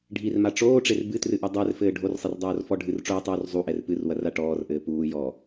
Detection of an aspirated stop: absent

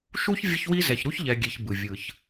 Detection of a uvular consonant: absent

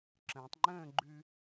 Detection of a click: present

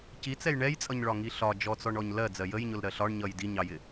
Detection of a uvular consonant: absent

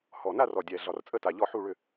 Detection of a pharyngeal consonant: present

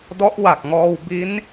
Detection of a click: absent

